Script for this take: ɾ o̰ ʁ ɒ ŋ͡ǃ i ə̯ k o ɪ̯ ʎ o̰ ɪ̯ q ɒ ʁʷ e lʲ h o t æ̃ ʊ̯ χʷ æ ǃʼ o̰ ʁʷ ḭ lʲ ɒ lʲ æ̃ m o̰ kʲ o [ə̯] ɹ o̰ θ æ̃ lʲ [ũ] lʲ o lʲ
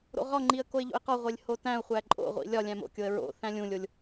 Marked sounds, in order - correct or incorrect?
correct, correct

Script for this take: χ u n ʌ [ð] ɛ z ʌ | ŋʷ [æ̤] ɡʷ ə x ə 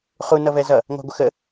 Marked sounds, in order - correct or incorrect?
incorrect, correct

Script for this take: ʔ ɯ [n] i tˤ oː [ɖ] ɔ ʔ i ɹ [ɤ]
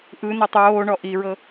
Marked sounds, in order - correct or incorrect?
correct, incorrect, correct

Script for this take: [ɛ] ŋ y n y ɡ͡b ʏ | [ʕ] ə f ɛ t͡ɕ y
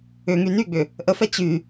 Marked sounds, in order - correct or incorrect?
incorrect, incorrect

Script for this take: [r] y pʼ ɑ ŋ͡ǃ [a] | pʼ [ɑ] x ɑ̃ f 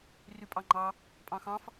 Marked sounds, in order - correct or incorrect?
correct, incorrect, incorrect

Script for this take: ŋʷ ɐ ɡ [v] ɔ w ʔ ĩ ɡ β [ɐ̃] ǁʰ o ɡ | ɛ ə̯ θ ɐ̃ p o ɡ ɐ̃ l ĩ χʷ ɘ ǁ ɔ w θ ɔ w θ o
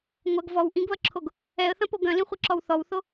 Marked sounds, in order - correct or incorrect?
correct, incorrect

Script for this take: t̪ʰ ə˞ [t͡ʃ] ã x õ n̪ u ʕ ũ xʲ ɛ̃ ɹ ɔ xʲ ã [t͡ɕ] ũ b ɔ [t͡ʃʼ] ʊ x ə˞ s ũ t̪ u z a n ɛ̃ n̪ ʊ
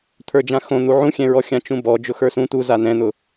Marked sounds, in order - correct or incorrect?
incorrect, incorrect, incorrect

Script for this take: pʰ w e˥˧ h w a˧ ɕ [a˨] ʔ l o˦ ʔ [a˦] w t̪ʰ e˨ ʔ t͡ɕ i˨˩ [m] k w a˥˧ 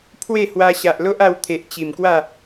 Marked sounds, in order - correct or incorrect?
correct, incorrect, correct

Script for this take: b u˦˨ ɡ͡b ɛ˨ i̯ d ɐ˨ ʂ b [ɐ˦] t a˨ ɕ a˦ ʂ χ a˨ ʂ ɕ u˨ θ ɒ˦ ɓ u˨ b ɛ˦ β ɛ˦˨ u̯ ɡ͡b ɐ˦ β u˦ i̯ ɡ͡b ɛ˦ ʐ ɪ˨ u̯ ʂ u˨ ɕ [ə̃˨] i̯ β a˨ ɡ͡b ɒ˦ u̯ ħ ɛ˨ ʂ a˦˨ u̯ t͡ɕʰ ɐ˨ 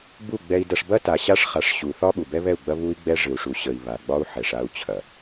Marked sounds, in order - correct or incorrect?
correct, incorrect

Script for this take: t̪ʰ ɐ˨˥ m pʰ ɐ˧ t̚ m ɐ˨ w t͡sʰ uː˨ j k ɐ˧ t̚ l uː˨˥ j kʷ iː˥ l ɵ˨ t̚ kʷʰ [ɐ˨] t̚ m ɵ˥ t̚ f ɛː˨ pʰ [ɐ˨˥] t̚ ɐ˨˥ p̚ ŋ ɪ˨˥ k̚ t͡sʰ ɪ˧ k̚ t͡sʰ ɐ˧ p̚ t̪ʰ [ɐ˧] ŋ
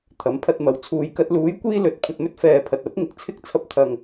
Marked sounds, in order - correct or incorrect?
incorrect, incorrect, correct

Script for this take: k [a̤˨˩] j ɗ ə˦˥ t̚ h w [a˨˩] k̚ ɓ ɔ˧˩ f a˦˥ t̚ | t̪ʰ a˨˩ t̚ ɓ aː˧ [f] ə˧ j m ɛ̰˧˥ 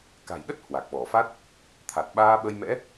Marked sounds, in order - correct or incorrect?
correct, correct, incorrect

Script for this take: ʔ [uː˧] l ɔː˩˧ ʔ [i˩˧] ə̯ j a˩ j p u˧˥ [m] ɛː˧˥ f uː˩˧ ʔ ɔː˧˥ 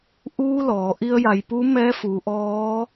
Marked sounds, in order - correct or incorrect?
correct, incorrect, correct

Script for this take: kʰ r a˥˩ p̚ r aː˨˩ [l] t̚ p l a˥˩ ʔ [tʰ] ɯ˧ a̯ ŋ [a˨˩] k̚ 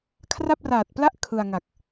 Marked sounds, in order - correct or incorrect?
incorrect, incorrect, correct

